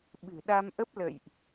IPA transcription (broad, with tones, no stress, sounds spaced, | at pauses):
ɓ ɨ̤˨˩ ɗ a˧ m ʔ ə˦˥ p̚ l ə̰˧˨ j ʔ